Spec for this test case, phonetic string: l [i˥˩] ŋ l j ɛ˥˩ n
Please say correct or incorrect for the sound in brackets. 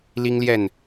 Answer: incorrect